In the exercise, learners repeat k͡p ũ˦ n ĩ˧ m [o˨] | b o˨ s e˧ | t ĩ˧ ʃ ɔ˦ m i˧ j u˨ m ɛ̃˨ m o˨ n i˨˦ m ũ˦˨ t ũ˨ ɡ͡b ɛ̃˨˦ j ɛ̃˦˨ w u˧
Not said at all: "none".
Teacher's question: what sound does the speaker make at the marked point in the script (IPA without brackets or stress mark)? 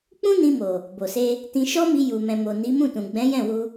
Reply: o˨